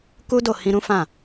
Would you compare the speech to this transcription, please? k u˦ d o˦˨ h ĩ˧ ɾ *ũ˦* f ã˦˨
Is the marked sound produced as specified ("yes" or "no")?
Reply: yes